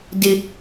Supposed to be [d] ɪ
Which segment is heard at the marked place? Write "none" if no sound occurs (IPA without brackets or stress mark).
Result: d